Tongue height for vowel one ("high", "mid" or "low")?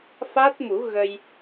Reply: low